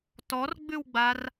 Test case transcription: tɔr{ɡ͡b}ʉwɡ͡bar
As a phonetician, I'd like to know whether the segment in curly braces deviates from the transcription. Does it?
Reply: no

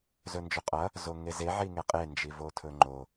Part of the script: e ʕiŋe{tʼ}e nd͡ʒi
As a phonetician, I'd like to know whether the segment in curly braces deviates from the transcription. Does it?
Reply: yes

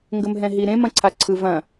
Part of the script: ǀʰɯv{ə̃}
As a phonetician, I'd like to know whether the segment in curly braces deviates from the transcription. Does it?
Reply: yes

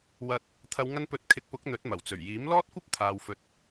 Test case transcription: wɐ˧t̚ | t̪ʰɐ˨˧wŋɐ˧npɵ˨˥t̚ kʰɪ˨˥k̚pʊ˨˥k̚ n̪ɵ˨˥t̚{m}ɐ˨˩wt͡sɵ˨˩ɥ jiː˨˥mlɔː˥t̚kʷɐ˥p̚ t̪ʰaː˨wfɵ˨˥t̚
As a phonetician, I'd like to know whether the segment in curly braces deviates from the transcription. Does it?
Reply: no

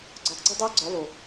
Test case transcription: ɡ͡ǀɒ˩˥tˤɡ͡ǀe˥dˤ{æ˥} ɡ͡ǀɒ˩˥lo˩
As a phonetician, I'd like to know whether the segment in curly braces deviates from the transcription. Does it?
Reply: no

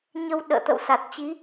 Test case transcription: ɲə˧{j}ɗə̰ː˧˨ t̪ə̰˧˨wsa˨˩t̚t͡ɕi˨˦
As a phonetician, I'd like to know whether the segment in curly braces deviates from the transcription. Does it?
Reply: yes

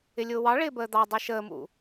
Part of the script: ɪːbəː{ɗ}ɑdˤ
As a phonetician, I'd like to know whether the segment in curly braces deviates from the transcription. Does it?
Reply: yes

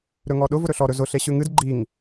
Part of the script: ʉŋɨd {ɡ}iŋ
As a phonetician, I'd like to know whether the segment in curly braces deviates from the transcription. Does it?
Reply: yes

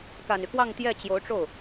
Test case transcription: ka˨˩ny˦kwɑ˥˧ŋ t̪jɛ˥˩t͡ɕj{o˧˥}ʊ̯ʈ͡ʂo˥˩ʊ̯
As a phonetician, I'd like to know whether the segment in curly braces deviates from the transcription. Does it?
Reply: no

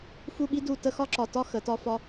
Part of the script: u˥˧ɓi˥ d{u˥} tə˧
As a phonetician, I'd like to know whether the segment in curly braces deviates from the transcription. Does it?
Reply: yes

